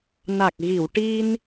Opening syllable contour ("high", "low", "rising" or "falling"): low